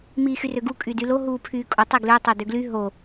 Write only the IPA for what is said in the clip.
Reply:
m iː x y r ø ɡ u kʼ y d y l o ɦ uː pʰ yː kʼ o tˤ i ɡ l ø tˤ ø d ø ɡ l y ɦ o

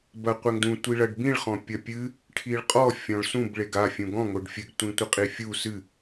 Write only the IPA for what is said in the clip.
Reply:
b ɐ qʷ ɛ ŋ d ũ tʷ i ɭ ɐ ɖ b ĩ ɭ χ ɔ̃ pʲ ɐ pʲ ɨ | ʈʰ i ɭ qʼ ɔ fʲ ɔ̃ ɭ s ũ b ɭ e ɡ a fʲ ũ ɡ ɔ̃ ŋ o ɖ fʲ ɘ ɡ tʷ ĩ tʷ ɨ qʼ i fʲ u s ɨ

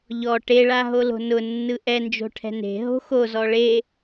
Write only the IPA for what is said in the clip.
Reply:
ʎ ɔ ʈ e ɭ a ɦ o l o̤ n ʊ nː ɯ ʔ ɛ n d͡ʒ o̤ ʈʰ ɛ̤ n e̤ ɦ o̤ x o z ɔ ɭ e

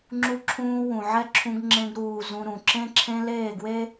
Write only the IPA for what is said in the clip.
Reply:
ŋ͡ǁ u˦ ǁʰ ũː˦ w ũ˨ ʕ ɛ˦ ǁʰ ũ˧ ɡ ŋ͡ǁ ẽ˧ ɡ ɾ uː˨ z ũ˧ ɾ ũ˨ ǁ ẽ˦ ǁʰ ẽ˦ l eː˦˨ ɡ w e˦

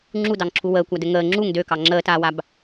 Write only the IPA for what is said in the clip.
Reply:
ŋ͡ǁ u d ɑ ŋ ǁʰ u w əː kʷ a d ɘ ŋ əː ŋ͡ǁ u ŋ d ø k ɑ ŋ͡ǁ əː t aː w a b

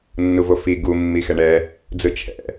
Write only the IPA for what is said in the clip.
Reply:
nː u v o f i ɡ u mː i x ɛ ɳ ɛ | d͡z ɯ t͡ʃʰ ɛ̰

